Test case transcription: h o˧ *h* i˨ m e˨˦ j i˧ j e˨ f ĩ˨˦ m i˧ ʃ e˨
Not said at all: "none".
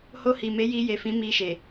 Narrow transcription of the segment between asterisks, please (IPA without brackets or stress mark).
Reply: h